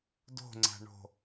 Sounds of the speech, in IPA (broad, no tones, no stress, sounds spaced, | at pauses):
d o̤ ŋ͡ǀ æ̤ ɳ o̤